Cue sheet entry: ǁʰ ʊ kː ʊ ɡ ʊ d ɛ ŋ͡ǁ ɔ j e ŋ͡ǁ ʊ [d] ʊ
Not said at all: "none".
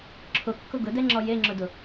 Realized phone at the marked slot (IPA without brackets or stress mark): d